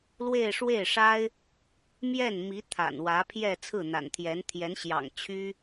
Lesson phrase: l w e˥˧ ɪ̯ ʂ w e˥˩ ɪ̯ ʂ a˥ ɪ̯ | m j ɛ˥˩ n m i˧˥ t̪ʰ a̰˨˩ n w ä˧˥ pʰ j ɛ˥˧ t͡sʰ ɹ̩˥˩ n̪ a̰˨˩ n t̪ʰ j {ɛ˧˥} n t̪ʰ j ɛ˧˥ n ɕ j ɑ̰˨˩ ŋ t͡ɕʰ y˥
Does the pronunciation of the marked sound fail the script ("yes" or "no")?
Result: no